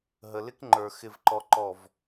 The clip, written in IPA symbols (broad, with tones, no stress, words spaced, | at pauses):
ɦə˨lɪ˦kŋ͡ǃə˞˨ xɪ˨vǃɔ˨ ǃɔ˨v